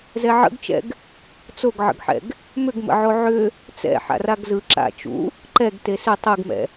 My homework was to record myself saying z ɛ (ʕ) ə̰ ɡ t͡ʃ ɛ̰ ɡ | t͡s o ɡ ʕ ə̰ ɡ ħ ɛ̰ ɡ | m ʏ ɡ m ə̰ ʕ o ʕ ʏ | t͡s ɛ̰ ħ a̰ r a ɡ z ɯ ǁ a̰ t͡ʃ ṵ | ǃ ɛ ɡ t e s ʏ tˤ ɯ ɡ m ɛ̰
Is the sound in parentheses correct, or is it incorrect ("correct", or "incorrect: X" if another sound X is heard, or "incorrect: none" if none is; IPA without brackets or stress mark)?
correct